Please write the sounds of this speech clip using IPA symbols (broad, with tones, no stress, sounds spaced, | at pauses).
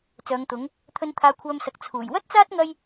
t͡s œː˨˧ ŋ t̪ ʊ˨˥ ŋ | t̪ʰ ɵ˧ n t̪ʰ aː˧ kʷʰ œː˧ m s ɐ˨ k̚ t͡sʰ uː˨˩ j w ɐ˥ t̚ t͡s aː˥ t̚ ŋ ɐ˧ j